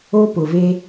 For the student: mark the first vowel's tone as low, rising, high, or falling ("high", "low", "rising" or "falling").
high